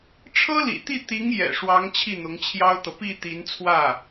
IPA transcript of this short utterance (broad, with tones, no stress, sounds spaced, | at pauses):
ʈ͡ʂʰ ɤ˥ l ḭ˨˩ t̪ i˥˩ t̪ i˧˥ ŋ j ɛ̰˨˩ ʂ w ɑ˧˥ ŋ t͡ɕʰ i˥˩ n̪ ʊ˧˥ ŋ t͡ɕʰ j ɑ˥ ʊ̯ t̪ ɤ˨ p i˥˩ t̪ i˧˥ n t͡sʰ w ä˥˩